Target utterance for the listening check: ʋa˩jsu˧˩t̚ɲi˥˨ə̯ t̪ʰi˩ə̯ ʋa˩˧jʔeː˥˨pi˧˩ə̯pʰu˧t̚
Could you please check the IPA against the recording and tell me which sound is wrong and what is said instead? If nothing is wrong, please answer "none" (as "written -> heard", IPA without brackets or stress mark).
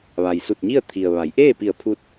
none